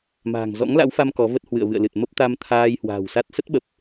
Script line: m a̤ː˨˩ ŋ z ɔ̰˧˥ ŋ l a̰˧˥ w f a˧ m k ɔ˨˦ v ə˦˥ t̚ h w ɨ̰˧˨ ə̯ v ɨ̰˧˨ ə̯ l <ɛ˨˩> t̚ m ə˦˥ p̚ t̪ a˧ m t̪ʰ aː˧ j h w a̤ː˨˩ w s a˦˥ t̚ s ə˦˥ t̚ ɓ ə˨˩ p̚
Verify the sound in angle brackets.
incorrect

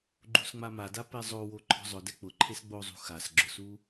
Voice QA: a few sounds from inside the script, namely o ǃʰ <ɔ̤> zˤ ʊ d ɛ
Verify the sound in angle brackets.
correct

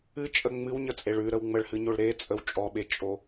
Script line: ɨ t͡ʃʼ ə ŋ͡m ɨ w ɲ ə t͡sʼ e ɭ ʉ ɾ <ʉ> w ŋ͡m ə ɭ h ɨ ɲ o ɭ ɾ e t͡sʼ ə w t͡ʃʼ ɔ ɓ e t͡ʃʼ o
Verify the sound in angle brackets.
incorrect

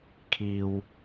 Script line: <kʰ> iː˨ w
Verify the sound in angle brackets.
correct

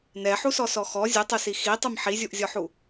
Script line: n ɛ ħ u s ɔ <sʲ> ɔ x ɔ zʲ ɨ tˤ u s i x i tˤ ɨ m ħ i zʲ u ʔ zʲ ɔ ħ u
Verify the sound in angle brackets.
incorrect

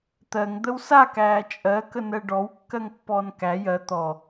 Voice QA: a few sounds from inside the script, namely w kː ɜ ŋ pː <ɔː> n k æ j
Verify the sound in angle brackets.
correct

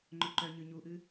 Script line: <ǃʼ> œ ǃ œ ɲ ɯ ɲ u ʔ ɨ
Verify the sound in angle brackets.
incorrect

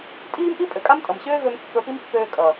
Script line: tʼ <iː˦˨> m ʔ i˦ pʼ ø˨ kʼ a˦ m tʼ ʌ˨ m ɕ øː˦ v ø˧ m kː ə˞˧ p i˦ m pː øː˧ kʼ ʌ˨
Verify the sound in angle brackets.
incorrect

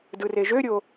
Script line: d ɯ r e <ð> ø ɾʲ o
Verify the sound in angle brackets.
incorrect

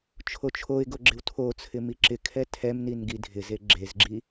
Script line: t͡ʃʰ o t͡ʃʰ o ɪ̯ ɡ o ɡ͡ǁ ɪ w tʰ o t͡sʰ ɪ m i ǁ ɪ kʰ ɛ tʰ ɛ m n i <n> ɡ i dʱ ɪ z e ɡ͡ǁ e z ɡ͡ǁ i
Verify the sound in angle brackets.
correct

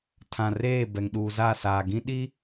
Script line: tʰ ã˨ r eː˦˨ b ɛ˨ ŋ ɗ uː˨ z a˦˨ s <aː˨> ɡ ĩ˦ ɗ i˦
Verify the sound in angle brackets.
correct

